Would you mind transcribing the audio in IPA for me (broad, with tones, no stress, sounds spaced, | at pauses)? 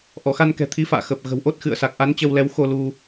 ʔ ɔ˧˩ x a˧ n k ɛ̤˨˩ t̪ʰ i˨˦ f a̰ː˧˨ x ə˨˩ p̚ ɣ ə̤˨˩ w ʔ o˦˥ t̚ x ɨ̰˧˨ ə̯ s a˨˩ k̚ ʔ a˨˦ n t͡ɕ ə˧ w l ɛ˨˦ w x o˧ l u˧